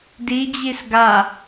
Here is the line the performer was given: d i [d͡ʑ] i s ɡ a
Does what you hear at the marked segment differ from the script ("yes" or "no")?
no